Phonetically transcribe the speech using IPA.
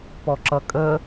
p ɔ ǁ ʌ kʼ ə

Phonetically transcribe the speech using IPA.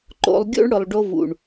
ǃ o̰˧ lˠ ɡʲ o̰˦ ɳ ɽ ʊ˨ lˠ ɖ o˧ v ṵ˨ ɳ

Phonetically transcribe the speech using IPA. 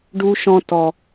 ɖ u˦ ʃ ɔ̃˦ t ɔ˦

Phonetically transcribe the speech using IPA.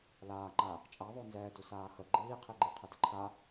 l aː ŋ͡ǃ a | t͡ʃʼ a ðˤ o n z ɛː d u s aː x ə ɡ͡ǃ iː qʰ i ɡ͡ǃ i qʰ ə d ə ǃʰ a

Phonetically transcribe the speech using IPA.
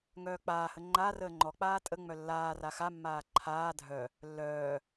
ŋ œː k͡p aː h ə ŋ͡ǃ a r əː ŋ͡ǃ ɔ k͡p aː tʼ ə ŋ͡m œ lː aː r a x a mː aː ǃʰ aː dʱ œ | lː œː

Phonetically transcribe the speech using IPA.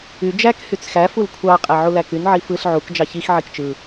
y d͡ʒ æ k h y t͡s x æ f u l kʷʰ ɑ qʼ æ ʕ u l æ k y n ʕ i f ɯ ɬ ʕ u k d͡ʒ ɑ ç i x ʕ i k t͡ʃ ɯ

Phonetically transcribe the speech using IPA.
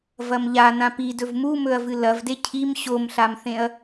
v ɐ m ʎ a n ã p i d ɵ v m u m ɵ ɐ̯ v ɨ l ɐ v d e cʰ i m ɕ o m ɬ a m θ ẽ ɐ̯

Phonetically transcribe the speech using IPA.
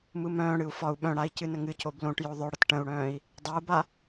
m ɯ m œ̃ː ɽ ɨ u̯ f ɒ u̯ ɓ œ̃ ɽ a i̯ c ɨ n ə ŋ ɨ c o b l õ ʈ j o ðˤ œ ɽ ə t ʈ ə̃ u̯ ɽ œ̃ː i̯ | dˤ a u̯ b a

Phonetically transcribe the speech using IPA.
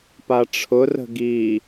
p a ʈ͡ʂʰ ʊ r ə̤ ɡ i

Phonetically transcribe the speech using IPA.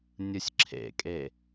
nʲ ɯ sʲ ǁʰ ḛ kʼ e

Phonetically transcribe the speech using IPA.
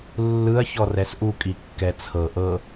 lː ɯ ɐ̯ ç ɔ r ɛ s ʔ u kʼ i kː ɛ t͡sʰ ɤ ʔ ɤ

